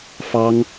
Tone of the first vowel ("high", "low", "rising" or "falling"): high